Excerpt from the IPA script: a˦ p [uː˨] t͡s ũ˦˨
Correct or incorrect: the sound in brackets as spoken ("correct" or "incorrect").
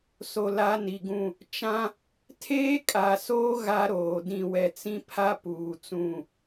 correct